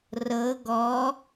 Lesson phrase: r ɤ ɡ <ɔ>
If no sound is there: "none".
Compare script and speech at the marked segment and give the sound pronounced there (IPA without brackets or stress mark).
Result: ɔ